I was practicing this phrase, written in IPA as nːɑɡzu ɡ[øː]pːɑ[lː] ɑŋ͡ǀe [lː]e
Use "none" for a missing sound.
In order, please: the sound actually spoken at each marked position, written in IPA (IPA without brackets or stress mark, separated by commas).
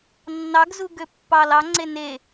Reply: ø, l, n